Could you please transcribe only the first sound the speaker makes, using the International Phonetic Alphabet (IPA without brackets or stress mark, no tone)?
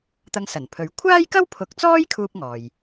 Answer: t̪